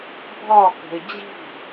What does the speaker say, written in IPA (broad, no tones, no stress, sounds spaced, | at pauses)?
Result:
bʱ ɒ k ə̤ ɪ̯ d͡ʑ i̤